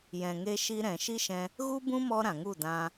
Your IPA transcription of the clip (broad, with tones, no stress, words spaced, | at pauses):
jɛ̃˨ŋe˧ʃi˧ɾɛ̃˨ ʃi˦ʃɛ̃˧ | ɣu˦bũ˦mɔ˧ ɾã˨ŋu˦˨dã˧